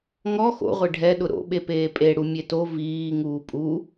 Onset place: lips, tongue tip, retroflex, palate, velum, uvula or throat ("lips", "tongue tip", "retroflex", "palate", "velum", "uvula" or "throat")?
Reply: velum